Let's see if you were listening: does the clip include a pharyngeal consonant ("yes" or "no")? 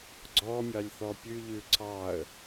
no